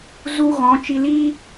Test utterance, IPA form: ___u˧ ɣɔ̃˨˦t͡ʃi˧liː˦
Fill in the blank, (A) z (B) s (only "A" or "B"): A